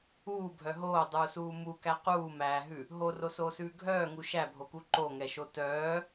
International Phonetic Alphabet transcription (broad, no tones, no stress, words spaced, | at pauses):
uːbʱœ ɦoːdˤuːsuː mukæ quːmæːɦʉ | ɦorosoːsʉː ɡʱœːŋu ʃæbʱoku ǃoŋɛʃo tœː